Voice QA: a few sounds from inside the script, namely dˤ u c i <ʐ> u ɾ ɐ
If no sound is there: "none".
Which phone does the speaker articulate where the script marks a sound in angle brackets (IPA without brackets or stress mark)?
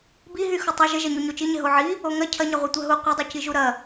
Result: ʒ